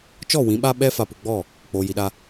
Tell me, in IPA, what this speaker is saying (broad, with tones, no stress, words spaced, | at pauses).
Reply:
t͡ʃɔ˦˨wĩ˨˦ɓa˦ ɓɛ˦ fa˨pu˨ɡ͡bɔ˦˨ | k͡poː˨ji˨ɗa˦